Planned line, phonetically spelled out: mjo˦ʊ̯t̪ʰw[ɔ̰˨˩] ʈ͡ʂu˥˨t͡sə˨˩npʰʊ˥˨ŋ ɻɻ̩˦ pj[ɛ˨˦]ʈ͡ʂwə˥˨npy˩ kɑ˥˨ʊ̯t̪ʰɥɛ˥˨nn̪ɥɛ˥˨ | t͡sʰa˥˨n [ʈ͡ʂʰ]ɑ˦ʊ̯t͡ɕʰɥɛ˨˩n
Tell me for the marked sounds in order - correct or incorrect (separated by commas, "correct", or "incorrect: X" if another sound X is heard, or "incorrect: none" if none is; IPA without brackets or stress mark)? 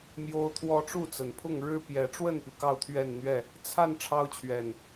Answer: incorrect: ɔ˦, correct, correct